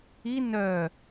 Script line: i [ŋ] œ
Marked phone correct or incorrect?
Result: incorrect